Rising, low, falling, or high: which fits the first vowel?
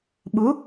rising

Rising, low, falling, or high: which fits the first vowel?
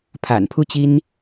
low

